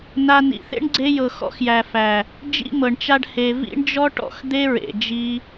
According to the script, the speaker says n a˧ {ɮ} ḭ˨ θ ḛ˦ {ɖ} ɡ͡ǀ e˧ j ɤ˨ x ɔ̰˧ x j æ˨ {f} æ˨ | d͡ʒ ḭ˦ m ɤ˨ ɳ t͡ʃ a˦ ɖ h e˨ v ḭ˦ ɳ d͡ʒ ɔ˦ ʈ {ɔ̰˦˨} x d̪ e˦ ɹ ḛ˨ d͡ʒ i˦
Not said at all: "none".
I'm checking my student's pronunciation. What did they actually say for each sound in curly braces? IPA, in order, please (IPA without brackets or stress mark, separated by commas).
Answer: n, ɳ, f, ɔ̰˦˨